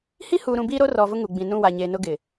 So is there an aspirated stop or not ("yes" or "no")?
no